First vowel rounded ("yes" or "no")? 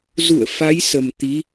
yes